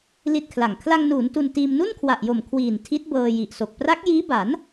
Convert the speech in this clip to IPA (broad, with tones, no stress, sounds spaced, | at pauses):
l i˥˩ t̚ kʰ l a˨˩ ŋ kʰ l a˧ ŋ n uː˩˦ n t u˧ n t iː˧ m n u˥˩ n kʰ w a˨˩ ʔ j o˨˩ m kʰ w iː˨˩ n tʰ i˦˥ t̚ b ɤː˧ j i˨˩ ʔ s o˨˩ k̚ p r a˦˥ k̚ j iː˦˥ b a˩˦ n